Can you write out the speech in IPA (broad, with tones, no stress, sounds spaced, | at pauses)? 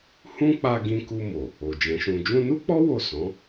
h ũ˦ k͡p a˧ ɡ ĩ˧ k u˧ m o˨ | o˨ d͡ʒ ɛ̃˨˦ ʃ ũ˧ d͡ʒ ũ˧ n u˦ k͡p ɔ˦ w o˦˨ s ɔ̃˨˦